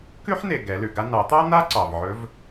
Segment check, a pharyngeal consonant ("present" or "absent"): present